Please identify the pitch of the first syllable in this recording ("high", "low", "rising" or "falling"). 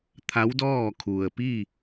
rising